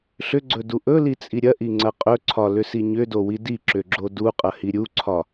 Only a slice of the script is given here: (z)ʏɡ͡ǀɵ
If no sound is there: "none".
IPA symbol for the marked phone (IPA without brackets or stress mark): ɬ